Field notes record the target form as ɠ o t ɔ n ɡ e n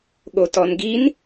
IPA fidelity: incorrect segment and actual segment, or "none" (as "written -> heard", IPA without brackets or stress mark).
e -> i